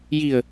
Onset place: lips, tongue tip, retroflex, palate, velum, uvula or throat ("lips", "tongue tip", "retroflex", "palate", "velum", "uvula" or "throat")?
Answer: palate